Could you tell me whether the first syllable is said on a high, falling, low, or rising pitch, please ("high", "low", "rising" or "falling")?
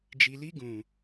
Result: low